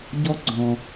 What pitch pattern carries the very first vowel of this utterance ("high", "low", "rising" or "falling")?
high